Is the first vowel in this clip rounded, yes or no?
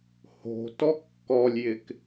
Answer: yes